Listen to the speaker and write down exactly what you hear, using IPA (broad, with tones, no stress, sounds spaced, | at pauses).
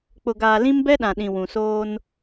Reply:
k͡p ʊ˨ ɡ aː˨ l ĩ˦ m b ɛ˦ ɗ ã˨ ɗ ĩ˨ w ũ˨ s oː˦ n